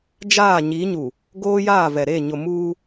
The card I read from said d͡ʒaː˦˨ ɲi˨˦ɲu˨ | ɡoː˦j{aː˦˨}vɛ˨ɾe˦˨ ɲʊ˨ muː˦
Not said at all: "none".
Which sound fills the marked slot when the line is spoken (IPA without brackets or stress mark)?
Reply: aː˦˨